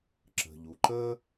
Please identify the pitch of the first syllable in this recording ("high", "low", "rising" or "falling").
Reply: low